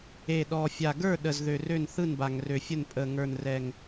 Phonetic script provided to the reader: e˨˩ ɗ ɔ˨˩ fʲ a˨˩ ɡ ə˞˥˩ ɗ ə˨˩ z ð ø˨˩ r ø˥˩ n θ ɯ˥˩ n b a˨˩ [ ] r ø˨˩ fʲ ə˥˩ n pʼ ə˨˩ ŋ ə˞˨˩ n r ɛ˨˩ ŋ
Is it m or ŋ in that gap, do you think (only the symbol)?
ŋ